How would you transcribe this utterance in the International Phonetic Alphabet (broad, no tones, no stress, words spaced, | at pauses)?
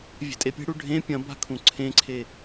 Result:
vʲe̤tʼepʲe̤ɽu ɖʱẽ pʲɐ̃ba̤ kʰũǀʰẽǀʰe